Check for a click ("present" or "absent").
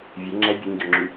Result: present